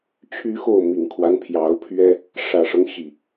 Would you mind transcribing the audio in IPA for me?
t͡ɕʰ y˦ x o˥˨ ʊ̯ m i˨˩ ŋ kʰ w a˦ n pʰ j ɑ˨˦ ʊ̯ pʰ ɥ ɛ˦ | ʂ ä˨˩ ʂ ɤ˦ ŋ ɕ i˨˩

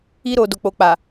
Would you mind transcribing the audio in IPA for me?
i˧ ɾ o˨ d o˨ k͡p o˨ k͡p a˨

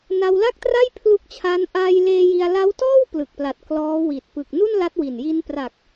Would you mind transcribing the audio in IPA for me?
n a˧ w l a˥˩ k̚ t r a˥˩ j pʰ l u˦˥ k̚ t͡ɕʰ aː˦˥ n ʔ aː˧ j l eː˧ j i˧ a̯ l a˦˥ w t ɔː˥˩ w p l ɯ˨˩ k̚ p l a˨˩ t̚ k l ɔː˦˥ w i˨˩ t̚ p ɯ˨˩ k̚ n u˥˩ n l a˦˥ t̚ w i˨˩ n j i˧ n p r a˨˩ k̚

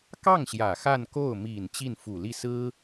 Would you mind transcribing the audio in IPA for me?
k ɑ˥˩ ŋ ɕ j ä˨˩ x a˥˧ n k o˥˩ ʊ̯ m i˨˩ n t͡ɕ i˥˩ n f u˨˩ l i˥˩ s ɹ̩˥

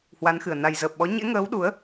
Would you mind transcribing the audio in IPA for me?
h w a˨˦ n x ɨ˨˩ ə̯ n a˨˩ j z əː˨˩ p̚ ɓ ɔ˨˦ ɲ ḛ˧˥ ŋ əː˨˦ w ɗ u˨˦ ə̯

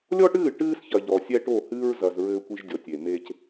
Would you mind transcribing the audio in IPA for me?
lʲ ɔ˦ ʈ ɨː˦˨ ʈ ɨː˦ s ç ɐ˨ ʎ ɔ˨ sʲ ɛ˦ ʈ o˦˨ h ɨː˦ ɹ z ɐ˨ z ɹ ɘː˦ kʷ i˦ ʒ dʲ ɔ˨ tʲ e˨ m e˦ c

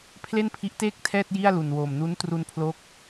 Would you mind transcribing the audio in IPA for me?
pʰ l e˥˩ n pʰ i˦˥ ʔ t eː˥˩ k̚ tʰ ɛː˥˩ t̚ j i˥˩ a̯ l u˨˩ n w oː˨˩ m n u˦˥ n t r u˧ n pʰ l o˦˥ k̚

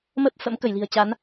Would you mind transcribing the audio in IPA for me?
m ə˦˥ p̚ f ə̰˧˥ m k ə˧˩ j l i̤˨˩ ə̯ t͡ɕ a˨˦ n

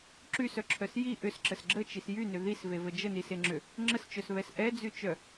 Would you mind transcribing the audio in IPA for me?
ǁ y s œ ǁʰ œ s j i ʔ ʏ s ǁ ə s ɡ͡ǁ ə t͡ʃ i s j y n ʏ ð i s v e v ə d͡ʒ ə n i s e ŋ͡ǁ ʏ | ŋ͡ǁ ə s t͡ʃ œ s β ɛ s ʔ ɛ d͡z y t͡ʃ œ

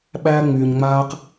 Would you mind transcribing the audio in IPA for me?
ɓ æː˧ ŋ͡m yː˨ ɲ ŋ͡m aː˧ q

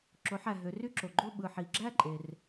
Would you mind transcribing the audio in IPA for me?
ǁ o˩˧ ħ æ˩ ɦ ø˩˧ r y˥˧ ǁ o˩ ɡ͡ǃ o˥˧ ɓ ɯ˩ ħ i˩ ɡ͡ǁ æ˥˧ ǃʼ e˩ r

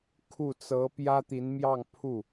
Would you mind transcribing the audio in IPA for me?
kʰ u˥˩ t͡s ɤ˧˥ p j ä˥ t̪ i˧˥ n m j ɑ˥˧ ŋ pʰ u˥˩

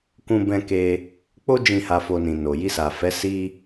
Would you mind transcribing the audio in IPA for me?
k ũ˦ b ɛ̃˦ k e˦ | k͡p o˦ d͡ʒ ĩ˦˨ h a˧ f o˧ n ĩ˨ n o˨ j i˧ s a˨ f ɛ˨˦ s i˦

